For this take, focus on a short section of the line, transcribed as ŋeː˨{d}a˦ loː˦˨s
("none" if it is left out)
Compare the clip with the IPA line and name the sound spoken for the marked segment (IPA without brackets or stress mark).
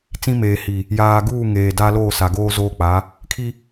d